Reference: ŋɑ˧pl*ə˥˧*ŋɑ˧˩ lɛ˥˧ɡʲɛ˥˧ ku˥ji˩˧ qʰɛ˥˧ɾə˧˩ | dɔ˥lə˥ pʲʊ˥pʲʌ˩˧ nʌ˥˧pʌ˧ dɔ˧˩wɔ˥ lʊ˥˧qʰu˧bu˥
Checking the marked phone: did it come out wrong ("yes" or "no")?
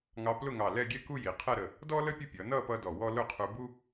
yes